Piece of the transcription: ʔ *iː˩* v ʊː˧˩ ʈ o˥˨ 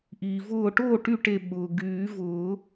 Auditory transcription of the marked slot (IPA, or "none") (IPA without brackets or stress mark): iː˩